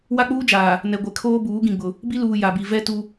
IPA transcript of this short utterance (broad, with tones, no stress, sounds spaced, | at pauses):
w a˦ k͡p uː˦ d͡ʒ aː˨ | n ɛ˨ ɡʷ ɛ˨ kʰ oː˦ b uː˨˦ ɡ ĩ˨ ɡ͡b ʊ˨ | b i˦ l uː˨ j a˨ b i˨ v ɛ˦ t u˦